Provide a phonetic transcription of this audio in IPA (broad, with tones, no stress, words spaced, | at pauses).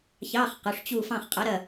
çɑ˧˥˧χ qʊ˩˧˩ʂt͡ɕu˦˨ fɑ̃˦˨χqʼɐ˧˥ɾɐ˦˨